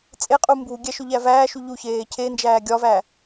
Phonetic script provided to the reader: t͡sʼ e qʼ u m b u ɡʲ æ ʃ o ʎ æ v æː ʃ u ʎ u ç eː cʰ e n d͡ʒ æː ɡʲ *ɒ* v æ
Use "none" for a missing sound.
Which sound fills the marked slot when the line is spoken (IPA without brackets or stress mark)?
ɒ